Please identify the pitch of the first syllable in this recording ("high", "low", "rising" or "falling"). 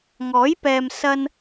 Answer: rising